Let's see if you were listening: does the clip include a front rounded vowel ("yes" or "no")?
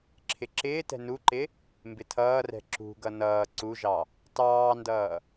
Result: no